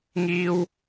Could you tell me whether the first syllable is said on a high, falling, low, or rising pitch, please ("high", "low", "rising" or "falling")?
high